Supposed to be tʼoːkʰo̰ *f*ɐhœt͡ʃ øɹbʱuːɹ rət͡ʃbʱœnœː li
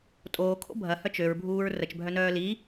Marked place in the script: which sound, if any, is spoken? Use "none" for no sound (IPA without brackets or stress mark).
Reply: bʱ